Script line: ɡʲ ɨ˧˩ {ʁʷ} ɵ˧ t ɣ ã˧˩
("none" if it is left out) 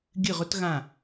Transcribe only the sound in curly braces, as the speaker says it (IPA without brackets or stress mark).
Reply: ʁ